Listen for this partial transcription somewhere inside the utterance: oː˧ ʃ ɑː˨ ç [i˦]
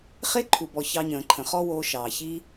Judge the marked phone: correct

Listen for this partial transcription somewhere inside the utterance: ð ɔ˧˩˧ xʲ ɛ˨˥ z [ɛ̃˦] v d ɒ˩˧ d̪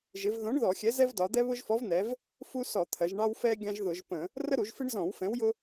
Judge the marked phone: incorrect: ɛ˦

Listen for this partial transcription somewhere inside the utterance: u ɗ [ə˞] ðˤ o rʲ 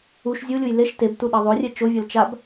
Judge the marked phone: incorrect: ʌ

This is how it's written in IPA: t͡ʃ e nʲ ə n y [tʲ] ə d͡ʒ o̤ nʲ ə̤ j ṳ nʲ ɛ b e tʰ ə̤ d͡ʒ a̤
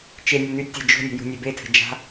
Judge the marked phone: correct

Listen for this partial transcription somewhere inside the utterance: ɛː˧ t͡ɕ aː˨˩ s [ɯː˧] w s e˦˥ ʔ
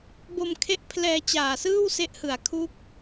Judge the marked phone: incorrect: ɯː˥˩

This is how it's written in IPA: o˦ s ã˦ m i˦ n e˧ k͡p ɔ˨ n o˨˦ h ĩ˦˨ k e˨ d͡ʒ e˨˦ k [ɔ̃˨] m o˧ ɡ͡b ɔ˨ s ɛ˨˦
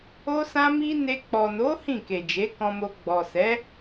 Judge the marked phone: incorrect: ɔ̃˧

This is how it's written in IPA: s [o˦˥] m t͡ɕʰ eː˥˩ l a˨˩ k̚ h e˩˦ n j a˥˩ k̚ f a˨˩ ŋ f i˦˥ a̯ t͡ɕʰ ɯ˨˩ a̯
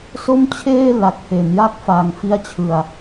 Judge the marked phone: incorrect: o˥˩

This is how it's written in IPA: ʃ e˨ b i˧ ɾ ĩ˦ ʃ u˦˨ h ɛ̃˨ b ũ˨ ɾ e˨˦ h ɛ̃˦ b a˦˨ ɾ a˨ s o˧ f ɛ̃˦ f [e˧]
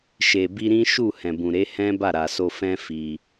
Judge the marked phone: incorrect: i˧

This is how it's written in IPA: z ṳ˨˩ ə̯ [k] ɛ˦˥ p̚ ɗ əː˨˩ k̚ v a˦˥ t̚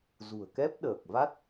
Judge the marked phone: correct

